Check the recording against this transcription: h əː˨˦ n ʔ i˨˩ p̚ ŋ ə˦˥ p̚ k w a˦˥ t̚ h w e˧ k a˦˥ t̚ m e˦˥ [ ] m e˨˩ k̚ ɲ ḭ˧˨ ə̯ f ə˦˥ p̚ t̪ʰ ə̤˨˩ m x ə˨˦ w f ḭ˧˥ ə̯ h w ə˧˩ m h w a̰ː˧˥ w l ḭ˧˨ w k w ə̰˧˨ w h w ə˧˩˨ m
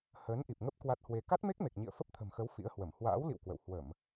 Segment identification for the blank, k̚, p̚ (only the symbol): k̚